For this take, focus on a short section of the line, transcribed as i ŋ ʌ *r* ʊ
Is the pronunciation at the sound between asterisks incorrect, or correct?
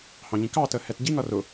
correct